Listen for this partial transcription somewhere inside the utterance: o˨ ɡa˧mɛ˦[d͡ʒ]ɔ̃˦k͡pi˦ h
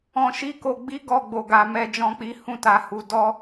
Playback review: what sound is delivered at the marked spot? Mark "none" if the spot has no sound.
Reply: d͡ʒ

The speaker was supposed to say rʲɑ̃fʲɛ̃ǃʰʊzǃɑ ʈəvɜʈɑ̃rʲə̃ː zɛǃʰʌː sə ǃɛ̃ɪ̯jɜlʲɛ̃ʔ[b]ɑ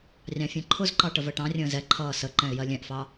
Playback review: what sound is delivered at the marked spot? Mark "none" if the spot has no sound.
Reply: f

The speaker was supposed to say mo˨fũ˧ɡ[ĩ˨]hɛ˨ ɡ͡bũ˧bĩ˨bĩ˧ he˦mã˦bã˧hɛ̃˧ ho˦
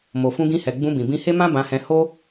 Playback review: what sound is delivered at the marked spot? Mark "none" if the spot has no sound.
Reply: ĩ˧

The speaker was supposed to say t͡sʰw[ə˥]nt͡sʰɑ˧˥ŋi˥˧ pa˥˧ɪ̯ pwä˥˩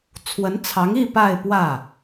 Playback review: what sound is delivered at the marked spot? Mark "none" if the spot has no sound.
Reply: ə˧˥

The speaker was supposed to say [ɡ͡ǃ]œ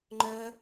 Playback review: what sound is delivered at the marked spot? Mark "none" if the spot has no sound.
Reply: ŋ͡ǃ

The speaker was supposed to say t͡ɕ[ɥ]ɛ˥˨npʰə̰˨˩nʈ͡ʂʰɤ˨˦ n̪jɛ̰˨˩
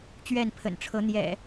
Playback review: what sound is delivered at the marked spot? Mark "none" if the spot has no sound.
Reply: ɥ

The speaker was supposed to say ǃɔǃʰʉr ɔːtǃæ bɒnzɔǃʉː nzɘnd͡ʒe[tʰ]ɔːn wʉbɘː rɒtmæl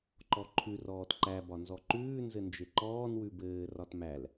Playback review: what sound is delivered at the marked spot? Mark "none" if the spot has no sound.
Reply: ǃ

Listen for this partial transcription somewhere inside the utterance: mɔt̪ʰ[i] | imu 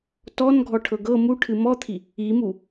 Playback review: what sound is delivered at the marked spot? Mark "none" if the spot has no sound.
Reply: i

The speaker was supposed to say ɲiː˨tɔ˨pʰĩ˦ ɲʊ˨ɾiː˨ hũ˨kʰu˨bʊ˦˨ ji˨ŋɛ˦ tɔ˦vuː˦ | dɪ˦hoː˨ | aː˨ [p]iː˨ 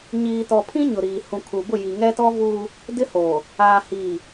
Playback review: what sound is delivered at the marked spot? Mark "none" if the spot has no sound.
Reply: h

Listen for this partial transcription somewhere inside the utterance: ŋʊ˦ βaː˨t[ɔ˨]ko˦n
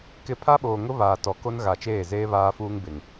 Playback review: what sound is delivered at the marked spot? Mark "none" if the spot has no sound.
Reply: ɔ˨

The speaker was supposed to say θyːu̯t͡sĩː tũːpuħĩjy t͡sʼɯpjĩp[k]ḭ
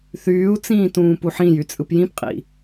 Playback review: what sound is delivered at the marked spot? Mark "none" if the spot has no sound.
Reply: qʼ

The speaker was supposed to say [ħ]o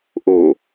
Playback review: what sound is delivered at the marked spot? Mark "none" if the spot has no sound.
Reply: ʔ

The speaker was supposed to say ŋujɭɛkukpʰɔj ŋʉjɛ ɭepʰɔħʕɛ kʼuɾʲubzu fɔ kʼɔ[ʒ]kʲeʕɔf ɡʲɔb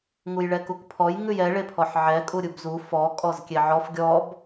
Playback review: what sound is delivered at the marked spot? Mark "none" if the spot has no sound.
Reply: z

